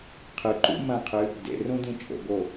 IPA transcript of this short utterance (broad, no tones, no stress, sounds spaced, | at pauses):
qʰ ɨ ǃ ṵ m ɐ̃ qʰ ɨ | d ḛ r ũ d ĩ t͡ʃʼ o̰ ɡ o